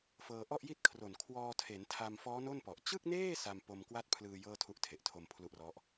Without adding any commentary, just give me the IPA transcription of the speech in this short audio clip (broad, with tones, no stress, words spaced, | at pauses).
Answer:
fɤː˧ʔɔ˥˩ʔji˥˩t̚ kʰro˨˩n kʰwɔː˧tʰe˩˦ntʰa˧mfɔː˦˥ no˥˩npɔ˨˩ʔ t͡ɕɯ˥˩k̚neː˥˩ sa˧mpo˧mkwa˥˩t̚pʰlɯː˧ jɤː˥˩tʰu˦˥ʔtʰe˨˩ʔ tʰo˧mpʰlu˦˥ʔrɔ˦˥ʔ